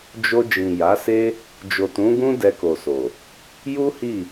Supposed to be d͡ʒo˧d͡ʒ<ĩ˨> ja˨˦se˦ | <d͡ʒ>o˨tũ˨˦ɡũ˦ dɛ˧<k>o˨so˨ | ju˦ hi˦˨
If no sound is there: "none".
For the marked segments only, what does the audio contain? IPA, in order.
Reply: ĩ˨, d͡ʒ, k

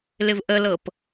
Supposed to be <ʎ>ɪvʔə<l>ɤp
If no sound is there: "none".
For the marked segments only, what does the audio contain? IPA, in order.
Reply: l, l

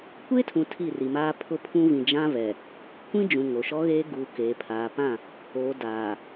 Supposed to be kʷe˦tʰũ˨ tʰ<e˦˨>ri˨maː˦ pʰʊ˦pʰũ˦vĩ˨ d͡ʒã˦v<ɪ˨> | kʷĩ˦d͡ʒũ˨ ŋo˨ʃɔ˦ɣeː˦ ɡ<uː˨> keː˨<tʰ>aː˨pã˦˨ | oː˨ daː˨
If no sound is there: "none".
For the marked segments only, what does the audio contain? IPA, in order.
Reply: i˦˨, ɛ˨, u˨, pʰ

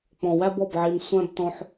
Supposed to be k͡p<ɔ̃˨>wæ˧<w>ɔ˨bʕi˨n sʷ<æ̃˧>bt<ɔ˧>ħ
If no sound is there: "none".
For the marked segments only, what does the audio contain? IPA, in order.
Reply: ɔ̃˨, b, æ̃˧, ɔ̃˧

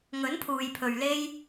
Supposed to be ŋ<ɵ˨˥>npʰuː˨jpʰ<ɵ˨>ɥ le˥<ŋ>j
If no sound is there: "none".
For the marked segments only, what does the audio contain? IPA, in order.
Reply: ɵ˨˥, ɵ˨, none

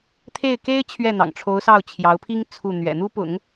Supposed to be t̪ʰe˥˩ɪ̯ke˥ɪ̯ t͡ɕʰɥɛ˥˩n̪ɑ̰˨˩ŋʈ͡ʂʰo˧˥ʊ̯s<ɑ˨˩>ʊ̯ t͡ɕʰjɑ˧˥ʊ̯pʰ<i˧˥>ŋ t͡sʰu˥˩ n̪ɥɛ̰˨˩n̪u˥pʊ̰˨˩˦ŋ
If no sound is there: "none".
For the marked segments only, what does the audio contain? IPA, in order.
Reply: ɑ˥˩, i˥

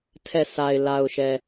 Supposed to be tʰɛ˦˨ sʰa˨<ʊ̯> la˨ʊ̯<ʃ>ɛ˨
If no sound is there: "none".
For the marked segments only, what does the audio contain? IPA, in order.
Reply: ɪ̯, ʃ

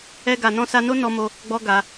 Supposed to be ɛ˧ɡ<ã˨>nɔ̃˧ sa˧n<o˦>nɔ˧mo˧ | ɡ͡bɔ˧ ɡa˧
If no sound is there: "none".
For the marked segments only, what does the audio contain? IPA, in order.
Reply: a˨, o˦

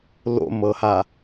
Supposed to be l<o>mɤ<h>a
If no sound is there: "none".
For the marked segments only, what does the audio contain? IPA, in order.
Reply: o̰, h

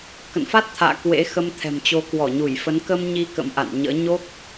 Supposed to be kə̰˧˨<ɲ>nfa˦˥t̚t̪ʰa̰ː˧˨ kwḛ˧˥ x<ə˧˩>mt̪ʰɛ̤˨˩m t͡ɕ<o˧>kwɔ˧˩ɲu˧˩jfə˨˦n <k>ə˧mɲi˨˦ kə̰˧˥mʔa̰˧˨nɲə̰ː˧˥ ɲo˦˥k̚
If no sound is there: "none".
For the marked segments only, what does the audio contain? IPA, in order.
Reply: none, ə˧, o˨˦, k

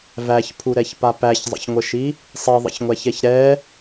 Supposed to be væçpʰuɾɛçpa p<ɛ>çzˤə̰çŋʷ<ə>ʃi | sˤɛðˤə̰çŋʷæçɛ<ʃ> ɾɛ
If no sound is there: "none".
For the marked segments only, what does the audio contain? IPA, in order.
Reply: æ, ə, ç

